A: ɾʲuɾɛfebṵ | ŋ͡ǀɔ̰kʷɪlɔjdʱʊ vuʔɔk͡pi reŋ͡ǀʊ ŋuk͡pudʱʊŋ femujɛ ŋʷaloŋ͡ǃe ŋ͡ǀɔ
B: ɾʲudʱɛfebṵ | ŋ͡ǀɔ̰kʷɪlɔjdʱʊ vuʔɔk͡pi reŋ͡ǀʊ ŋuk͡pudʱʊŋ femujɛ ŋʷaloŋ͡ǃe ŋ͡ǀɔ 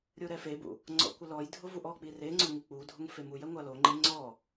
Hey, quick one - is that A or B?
A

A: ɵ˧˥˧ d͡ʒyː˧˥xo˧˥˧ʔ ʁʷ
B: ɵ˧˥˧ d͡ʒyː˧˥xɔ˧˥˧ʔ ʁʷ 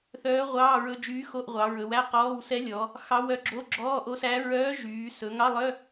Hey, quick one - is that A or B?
A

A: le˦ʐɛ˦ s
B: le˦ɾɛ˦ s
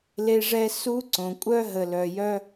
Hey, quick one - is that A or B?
A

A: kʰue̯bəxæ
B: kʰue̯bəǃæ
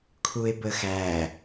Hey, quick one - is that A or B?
A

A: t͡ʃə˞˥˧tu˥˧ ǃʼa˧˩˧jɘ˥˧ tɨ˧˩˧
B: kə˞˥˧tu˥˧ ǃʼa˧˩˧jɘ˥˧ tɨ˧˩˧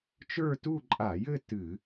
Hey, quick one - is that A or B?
A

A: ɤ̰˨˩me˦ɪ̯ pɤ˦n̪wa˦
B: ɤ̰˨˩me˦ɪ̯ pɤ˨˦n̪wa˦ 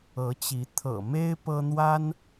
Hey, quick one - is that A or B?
A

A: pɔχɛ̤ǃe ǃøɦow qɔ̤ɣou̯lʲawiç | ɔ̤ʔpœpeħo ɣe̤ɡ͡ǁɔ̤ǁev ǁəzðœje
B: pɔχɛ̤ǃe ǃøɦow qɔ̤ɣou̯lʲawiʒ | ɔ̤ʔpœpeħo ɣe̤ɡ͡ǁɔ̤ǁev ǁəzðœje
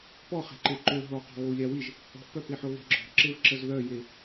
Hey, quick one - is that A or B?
B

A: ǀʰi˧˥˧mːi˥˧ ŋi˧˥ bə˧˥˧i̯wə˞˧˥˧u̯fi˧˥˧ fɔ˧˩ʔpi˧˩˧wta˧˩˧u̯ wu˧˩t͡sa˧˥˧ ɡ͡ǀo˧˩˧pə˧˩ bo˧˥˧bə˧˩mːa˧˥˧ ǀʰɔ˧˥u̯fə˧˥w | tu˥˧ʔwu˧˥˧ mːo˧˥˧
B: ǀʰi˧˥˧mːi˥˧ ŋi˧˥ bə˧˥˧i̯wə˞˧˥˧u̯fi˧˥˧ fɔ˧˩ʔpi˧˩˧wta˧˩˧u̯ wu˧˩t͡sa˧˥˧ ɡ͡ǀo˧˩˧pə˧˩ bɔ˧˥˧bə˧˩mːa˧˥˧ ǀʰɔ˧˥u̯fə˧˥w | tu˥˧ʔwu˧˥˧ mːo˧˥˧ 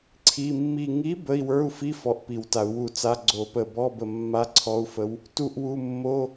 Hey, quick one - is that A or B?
B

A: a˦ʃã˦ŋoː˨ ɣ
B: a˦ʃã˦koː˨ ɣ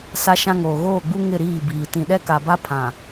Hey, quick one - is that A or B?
A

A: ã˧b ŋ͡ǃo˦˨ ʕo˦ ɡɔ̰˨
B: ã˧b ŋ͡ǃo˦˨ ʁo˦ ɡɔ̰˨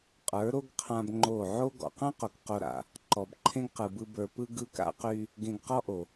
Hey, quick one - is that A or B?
A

